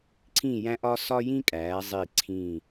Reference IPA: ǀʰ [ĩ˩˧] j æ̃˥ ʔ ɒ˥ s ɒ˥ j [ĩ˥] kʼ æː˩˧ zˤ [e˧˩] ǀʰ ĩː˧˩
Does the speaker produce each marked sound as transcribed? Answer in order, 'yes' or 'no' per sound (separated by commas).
no, yes, no